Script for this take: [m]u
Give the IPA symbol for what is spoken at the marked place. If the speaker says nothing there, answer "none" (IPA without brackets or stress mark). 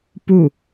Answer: p